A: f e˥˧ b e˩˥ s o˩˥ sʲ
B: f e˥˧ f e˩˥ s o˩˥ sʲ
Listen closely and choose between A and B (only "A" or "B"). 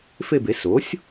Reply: A